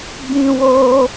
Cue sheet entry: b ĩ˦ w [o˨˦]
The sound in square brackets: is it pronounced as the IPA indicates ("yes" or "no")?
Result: no